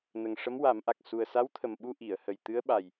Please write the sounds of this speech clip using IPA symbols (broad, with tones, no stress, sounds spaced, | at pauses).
n ə˨˩ ŋ ʂ ə˧˥ m w a˨˩˦ m ʔ a˨˩ k̚ s u˨˩ ə̯ s a˧˥ w t̪ʰ ə˨˩ m ɓ u˧ ʔ i˨˩˨ ə̯ h ə˨˩ j t̪ ɨ˧˥ ə̯ ɓ a˨˩ j